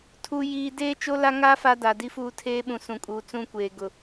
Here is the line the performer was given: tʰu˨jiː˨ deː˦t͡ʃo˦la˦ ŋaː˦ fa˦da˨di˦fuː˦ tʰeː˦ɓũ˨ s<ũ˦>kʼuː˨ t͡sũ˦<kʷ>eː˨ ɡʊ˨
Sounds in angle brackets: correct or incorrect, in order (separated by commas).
incorrect, correct